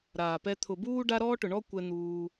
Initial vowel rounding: unrounded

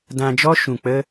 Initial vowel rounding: unrounded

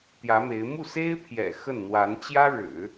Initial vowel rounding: unrounded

